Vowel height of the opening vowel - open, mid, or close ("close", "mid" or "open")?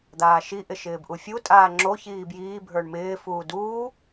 open